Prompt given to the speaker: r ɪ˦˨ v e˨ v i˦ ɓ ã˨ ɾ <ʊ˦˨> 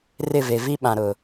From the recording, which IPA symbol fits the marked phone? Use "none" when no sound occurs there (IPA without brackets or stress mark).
ʊ˨